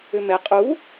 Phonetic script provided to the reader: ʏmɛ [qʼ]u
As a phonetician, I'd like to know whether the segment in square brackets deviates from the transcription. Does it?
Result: no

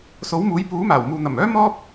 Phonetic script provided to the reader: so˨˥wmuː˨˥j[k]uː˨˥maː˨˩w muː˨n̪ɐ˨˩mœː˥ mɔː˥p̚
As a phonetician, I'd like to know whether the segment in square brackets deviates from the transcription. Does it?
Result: yes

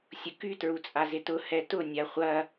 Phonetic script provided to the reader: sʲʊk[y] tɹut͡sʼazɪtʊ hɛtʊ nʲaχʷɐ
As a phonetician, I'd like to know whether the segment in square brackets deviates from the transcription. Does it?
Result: no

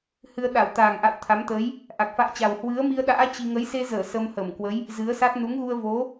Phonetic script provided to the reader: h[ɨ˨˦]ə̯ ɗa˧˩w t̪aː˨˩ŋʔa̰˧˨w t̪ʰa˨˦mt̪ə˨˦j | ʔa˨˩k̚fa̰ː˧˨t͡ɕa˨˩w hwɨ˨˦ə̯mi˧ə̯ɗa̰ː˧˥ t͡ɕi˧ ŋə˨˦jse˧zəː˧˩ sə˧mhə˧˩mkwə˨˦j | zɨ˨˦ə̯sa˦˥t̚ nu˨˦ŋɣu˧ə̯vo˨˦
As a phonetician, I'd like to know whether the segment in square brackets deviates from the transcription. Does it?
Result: yes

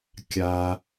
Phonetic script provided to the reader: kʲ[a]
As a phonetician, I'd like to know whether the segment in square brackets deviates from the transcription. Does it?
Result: no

